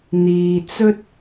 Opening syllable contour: low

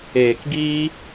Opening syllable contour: low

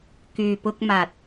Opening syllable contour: low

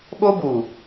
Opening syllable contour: high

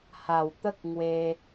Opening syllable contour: low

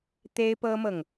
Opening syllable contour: high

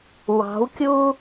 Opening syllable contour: rising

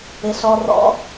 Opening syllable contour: low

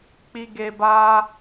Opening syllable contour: low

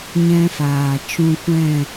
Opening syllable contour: high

